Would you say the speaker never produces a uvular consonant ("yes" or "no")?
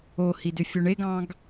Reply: yes